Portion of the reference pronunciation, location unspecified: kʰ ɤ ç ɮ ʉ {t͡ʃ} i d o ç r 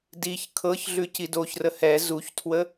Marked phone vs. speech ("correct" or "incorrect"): incorrect